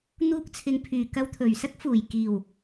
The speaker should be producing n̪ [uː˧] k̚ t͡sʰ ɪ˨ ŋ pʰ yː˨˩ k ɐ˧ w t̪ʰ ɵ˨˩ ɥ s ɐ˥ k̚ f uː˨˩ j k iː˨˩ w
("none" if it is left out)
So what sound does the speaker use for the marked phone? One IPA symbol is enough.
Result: uː˧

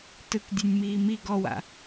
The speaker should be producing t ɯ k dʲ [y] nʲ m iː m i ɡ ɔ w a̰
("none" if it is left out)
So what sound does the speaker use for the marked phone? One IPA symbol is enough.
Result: e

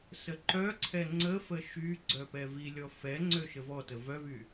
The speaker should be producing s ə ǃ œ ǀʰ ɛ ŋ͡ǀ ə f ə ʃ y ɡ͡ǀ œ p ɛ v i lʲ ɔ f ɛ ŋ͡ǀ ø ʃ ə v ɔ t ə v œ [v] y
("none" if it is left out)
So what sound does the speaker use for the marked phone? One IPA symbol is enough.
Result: v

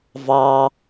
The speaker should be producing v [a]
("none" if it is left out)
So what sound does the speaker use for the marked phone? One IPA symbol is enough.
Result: ɑ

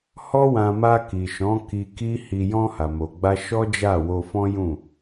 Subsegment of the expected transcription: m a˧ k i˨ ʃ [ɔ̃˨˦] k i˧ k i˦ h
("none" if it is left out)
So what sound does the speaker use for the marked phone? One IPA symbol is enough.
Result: ɔ̃˨˦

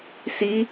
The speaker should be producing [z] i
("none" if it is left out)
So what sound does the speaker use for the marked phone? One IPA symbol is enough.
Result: s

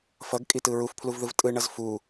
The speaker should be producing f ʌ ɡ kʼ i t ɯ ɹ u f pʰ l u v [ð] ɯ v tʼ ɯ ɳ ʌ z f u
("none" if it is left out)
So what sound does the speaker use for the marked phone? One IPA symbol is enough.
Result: ð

